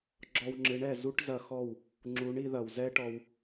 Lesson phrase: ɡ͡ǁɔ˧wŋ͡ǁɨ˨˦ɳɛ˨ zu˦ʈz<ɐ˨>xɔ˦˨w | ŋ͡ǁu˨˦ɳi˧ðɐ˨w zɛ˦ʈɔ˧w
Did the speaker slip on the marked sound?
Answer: yes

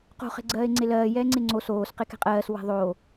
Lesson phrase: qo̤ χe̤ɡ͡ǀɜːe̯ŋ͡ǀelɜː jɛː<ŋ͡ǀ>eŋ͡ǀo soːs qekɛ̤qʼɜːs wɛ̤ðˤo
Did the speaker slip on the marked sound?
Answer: no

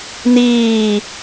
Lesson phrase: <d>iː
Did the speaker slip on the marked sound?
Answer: yes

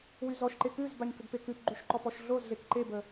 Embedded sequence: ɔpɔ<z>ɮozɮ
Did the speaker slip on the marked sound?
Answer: yes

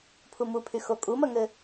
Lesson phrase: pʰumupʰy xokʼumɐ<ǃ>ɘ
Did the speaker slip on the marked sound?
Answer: yes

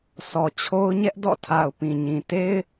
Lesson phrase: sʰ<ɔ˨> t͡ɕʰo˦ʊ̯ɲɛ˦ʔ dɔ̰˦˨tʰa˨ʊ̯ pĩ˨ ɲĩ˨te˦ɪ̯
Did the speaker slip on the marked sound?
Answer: no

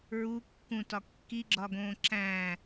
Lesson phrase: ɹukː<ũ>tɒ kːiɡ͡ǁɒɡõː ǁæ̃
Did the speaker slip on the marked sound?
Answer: no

